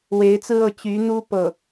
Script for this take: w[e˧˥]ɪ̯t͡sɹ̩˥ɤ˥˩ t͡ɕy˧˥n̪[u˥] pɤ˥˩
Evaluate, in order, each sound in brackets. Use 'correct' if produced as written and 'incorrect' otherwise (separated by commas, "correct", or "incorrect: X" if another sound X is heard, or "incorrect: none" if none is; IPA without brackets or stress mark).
correct, correct